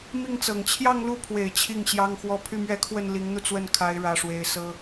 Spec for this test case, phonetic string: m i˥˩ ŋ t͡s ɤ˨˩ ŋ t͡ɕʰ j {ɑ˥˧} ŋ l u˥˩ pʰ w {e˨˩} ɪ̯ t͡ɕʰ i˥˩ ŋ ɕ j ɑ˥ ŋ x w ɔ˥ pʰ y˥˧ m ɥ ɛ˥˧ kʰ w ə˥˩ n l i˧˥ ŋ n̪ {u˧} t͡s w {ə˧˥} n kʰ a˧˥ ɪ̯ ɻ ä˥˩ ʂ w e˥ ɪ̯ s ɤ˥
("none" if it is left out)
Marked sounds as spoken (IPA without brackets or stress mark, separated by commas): ɑ˥˧, e˨˩, u˧, ə˥˩